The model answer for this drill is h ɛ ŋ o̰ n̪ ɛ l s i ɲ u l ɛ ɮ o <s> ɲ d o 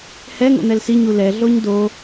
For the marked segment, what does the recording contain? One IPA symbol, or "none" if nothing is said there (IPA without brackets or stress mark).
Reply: none